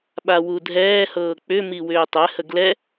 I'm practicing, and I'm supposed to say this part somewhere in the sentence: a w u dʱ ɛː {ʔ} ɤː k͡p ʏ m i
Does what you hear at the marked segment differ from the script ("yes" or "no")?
yes